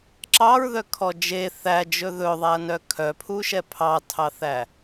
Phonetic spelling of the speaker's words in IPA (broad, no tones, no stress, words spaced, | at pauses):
ǁɑɹðœkʰɔ d͡ʒe θæd͡ʒɵ ðɵðˤæɐ̯nœ kʰœpʰuʃɛ pʰɑtʰɑθæ